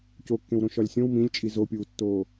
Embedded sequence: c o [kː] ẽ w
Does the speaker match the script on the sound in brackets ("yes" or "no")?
yes